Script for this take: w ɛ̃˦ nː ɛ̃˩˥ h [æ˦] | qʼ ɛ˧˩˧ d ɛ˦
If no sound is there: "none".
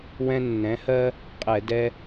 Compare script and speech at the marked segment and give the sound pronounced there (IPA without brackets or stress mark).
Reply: ɜ˦